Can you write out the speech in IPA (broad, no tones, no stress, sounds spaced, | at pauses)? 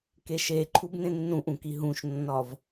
k e ʃ e ǃʰ u b n ẽ nː ũ ʔ ũ k i ɦ ũ ʃ nː ɒ v